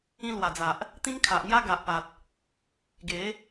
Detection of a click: absent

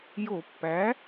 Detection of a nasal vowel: absent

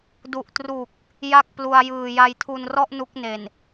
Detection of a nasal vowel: absent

